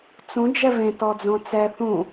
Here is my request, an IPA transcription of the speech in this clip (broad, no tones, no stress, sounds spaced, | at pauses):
t͡s ũ d͡ʒ ɛ v ẽ t ɔ d͡z õ t͡s ɛ θ ũ